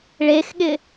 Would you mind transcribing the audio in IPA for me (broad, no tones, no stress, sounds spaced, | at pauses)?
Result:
ɭ e x ɠ ɪ